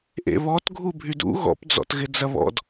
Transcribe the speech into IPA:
ʔ ḛ β ɔ t ɡʱ u bʱ y d ṵ ɣ ɔ̰ p d͡z ɔ̰ t ɣ ɪ d͡z ɐ β ɔ̰ d

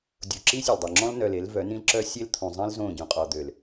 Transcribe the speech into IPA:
dʲ u˨ ǁ i˦ sʲ ø˨ l dˤ y˨ ŋ͡ǁ ɔ̃˦ l n œ˨ l e˨˦ l v œ˨˦ n ĩ˦ l ǁ œ˦ sʲ e˦ l t̪ʰ ũ˨ zˤ ĩ˦ l z õ˦˨ ɟ ũ˨ qʼ ɔ˨ d̪ ø˨ l

